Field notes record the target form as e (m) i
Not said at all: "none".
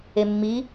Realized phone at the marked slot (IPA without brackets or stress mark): mː